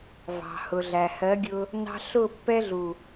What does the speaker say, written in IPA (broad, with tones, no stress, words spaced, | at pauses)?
vɑ̤˨hʊ˨ɮæ˨ hɜ˨˦ɡʲʊ˧ | nɑ̤˧ ɬʊ˦˨ pːɛ˧ɮu˨